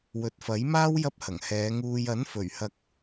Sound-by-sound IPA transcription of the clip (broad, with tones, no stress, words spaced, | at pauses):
wɵ˨t̚fɐ˨˥jmaː˥w jɐ˥p̚hɐ˨˩ŋhɛː˨˧ ŋuː˨jɐ˨˥nfɵ˨˩ɥhɐ˨˥k̚